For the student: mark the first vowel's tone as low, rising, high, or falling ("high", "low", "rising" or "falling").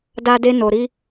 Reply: high